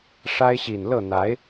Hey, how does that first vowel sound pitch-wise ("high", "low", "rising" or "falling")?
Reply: high